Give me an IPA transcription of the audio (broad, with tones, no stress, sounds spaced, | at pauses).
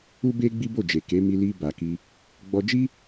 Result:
u˦ b e˦ ɡ͡b i˦ b o˦˨ d͡ʒ e˨ k e˨˦ m i˧ l i˧ b a˨ k i˧ | ɡ͡b ɔ˧ d͡ʒ i˦